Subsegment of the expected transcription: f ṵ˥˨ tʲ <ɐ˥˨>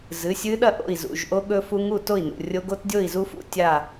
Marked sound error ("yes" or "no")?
yes